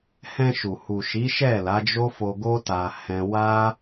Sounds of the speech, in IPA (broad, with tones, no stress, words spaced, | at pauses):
hɛ̃˧ʃu˨ hu˨ ʃi˨˦ʃɛ˦˨ la˨˦d͡ʒo˦fo˧ɡo˦ ta˧hɛ̃˦ wa˦